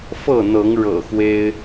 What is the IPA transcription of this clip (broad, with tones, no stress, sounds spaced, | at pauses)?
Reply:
f ɤ˥˨ n̪ ɤ˨˦ ŋ ɻ ɤ̰˨˩ x w e˦ ɪ̯